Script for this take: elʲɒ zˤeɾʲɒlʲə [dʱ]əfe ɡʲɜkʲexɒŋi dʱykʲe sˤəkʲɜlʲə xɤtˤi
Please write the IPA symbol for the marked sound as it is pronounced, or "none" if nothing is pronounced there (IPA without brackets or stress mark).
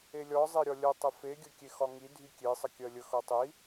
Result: tˤ